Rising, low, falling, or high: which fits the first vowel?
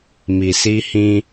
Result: low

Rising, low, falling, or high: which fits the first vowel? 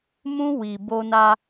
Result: high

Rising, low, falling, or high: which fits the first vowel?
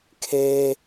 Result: high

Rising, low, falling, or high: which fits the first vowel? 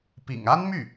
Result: low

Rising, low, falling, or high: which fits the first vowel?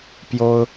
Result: high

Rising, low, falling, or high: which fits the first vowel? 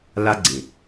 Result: high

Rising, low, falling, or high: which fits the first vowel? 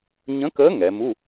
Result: rising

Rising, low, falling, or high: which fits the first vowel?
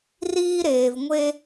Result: high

